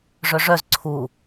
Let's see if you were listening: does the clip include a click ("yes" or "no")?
yes